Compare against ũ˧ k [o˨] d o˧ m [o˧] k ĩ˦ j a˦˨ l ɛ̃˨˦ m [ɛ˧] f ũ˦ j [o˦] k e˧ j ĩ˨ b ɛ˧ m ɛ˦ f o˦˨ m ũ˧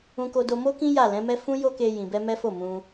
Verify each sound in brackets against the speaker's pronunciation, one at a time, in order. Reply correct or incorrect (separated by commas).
incorrect, incorrect, incorrect, correct